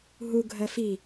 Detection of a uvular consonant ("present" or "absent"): absent